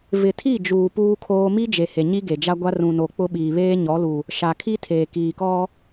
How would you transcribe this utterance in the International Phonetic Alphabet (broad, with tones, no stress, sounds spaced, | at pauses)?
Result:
v ɪ˨ tʰ i˦˨ d͡ʒ uː˨ p uː˦ kʰ oː˦ m i˦ d͡ʒ e˨ h e˨ ɲ i˦ ɡ e˨ d͡ʒ a˦ ɡʷ a˦ r ũ˨ n o˨ k͡p ʊ˦ ɓ iː˨ β eː˦ ɲ ɔ˨˦ l u˨ | ʃ a˨ kʰ i˦ tʰ eː˨ k iː˨ k ɔ˦